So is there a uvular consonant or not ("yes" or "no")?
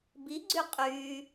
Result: yes